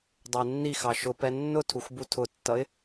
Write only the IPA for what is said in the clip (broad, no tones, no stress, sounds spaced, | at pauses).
dˤ ʊ ɪ̯ nː i x ɑ ʃ ʊ p ɛ nː ʊ tʰ u x b u tʰ ʊ tː ʌ ɪ̯